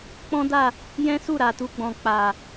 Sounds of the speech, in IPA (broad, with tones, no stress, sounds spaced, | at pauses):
k͡p ɔ̃˦ d a˦˨ | j ɛ̃˦ s u˦˨ ɾ a˨ t u˧ ɡ͡b ɔ̃˨ k͡p a˨